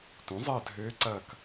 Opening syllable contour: rising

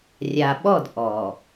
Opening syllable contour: low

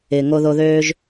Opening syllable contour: low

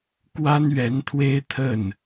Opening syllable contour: high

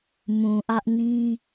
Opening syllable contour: low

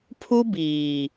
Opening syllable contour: high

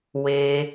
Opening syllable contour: low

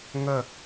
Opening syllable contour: falling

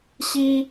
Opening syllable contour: high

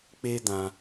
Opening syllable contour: high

